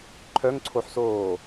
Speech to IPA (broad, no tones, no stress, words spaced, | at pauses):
ǃʰœŋǀʰoħsoː